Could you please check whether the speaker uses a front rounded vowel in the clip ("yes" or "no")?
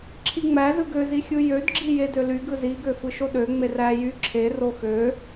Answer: yes